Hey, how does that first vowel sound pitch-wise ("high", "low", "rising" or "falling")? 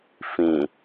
low